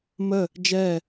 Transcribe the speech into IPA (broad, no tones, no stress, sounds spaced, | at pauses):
m ə | d͡ʒ ɛ